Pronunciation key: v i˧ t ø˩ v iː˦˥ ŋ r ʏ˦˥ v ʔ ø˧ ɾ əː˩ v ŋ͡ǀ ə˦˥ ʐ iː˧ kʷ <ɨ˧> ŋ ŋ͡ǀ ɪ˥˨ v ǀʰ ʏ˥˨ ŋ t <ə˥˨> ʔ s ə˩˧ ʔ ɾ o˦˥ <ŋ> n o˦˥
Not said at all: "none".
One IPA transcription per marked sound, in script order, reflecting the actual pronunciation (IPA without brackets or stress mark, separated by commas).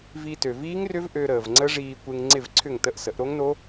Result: e˧, ə˥˨, ŋ